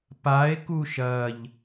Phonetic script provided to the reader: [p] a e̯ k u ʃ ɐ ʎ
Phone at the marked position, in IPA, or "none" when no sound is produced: p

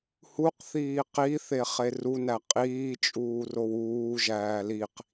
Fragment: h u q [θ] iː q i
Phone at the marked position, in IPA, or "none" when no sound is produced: θ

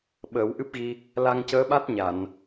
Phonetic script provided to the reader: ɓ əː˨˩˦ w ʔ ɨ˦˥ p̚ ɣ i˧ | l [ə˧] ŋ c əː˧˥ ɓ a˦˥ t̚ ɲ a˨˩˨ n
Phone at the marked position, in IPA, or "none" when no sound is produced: a˧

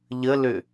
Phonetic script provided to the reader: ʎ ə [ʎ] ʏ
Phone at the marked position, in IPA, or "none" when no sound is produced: l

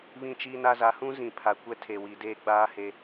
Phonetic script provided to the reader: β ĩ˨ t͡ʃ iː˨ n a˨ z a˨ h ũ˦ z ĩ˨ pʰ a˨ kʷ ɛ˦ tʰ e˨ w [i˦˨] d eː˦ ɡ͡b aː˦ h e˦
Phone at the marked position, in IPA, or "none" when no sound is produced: i˨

